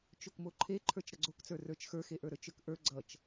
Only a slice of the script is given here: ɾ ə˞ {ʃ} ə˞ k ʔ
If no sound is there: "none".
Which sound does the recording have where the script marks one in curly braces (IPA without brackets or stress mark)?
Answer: t͡ʃ